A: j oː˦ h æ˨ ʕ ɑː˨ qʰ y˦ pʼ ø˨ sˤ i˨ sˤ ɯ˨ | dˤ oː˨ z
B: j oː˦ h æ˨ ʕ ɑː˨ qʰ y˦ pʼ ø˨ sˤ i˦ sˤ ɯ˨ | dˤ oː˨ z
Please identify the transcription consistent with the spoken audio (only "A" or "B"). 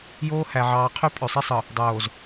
B